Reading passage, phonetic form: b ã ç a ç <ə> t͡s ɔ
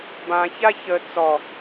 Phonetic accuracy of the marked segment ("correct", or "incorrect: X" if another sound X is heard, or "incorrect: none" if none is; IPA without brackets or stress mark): correct